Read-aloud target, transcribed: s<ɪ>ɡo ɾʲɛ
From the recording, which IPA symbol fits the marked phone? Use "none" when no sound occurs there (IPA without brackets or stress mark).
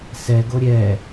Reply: ɛ